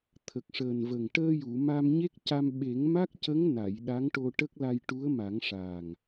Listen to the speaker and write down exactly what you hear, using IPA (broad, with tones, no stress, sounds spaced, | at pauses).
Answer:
t̪ʰ ə˨˩ k̚ ʂ əː˨˩ n v ə˨˩ ŋ ʈ əː˧ j u˨˩˨ m a˧ m ɲ e˦˥ k̚ c a˧ m ɓ e˨˩˦ ŋ m a˦˥ k̚ c ə˧˥ ŋ n a˨˩˨ j ɗ a˧˥ ŋ ʈ o˧ ʈ ə˦˥ k̚ l a˧ j ʈ u˧˥ ə̯ m a˨˩˦ ŋ ʂ a˨˩ ŋ